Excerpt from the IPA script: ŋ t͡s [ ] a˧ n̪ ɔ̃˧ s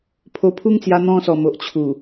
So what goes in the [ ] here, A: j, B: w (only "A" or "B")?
A